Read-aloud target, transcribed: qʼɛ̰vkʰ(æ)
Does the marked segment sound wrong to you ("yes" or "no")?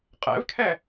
yes